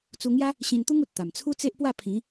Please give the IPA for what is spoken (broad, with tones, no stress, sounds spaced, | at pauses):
t͡s u˧ ŋ j a˦ | ɕ ĩ˧ n t̪ u˦ ŋ u˨ t̚ t̪ a˨˩ m t͡sʰ u˦ t͡s e˦ ʔ p w a˥˧ pʰ ĩ˨˦